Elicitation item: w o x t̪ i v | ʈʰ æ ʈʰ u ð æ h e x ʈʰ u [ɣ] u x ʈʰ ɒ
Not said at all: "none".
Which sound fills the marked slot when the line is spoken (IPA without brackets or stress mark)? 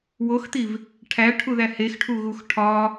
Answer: ɣ